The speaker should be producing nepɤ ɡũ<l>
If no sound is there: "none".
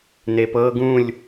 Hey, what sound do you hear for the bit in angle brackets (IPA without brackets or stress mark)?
lʲ